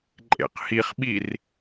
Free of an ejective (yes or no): no